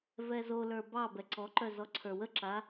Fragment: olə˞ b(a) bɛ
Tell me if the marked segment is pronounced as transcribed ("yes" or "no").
no